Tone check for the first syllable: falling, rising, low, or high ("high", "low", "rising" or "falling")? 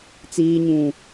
low